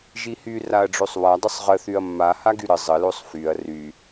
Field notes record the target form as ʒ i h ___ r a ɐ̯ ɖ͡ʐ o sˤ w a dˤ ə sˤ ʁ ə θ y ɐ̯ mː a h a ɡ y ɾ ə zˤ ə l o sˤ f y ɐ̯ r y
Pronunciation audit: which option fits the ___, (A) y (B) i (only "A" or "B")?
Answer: A